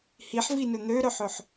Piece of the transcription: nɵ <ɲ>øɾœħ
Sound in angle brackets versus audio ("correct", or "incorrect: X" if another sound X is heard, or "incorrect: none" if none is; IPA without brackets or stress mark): incorrect: n̪